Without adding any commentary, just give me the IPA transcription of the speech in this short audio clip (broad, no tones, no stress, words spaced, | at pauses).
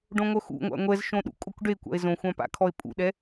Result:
ɖõŋʷœxṵŋʷa̰ ŋʷɛzʃõ ɗṵkʼokʷɖekʷa̰e̯ zõxʷã pa̰kʰɔe̯pʼṵɗɛ